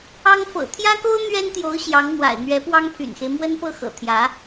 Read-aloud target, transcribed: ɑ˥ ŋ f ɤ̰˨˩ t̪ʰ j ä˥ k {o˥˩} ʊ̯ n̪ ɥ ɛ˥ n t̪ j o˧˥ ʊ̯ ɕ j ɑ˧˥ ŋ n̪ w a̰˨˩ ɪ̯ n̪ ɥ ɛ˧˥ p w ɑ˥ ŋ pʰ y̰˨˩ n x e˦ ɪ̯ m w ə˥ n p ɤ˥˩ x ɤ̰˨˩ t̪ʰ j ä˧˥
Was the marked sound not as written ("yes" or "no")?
yes